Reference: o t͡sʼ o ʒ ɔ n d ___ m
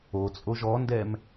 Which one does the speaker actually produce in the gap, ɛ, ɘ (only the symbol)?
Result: ɛ